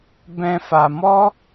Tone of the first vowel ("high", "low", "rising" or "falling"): high